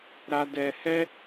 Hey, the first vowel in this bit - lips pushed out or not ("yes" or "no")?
no